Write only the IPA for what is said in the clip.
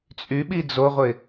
t͡sʼ y ɓ i d͡z o ʁʷ ɪ

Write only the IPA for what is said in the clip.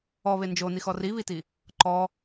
ɔ β e n d͡ʒ o n i x ɔ r i β i t i | ǃ ɔ

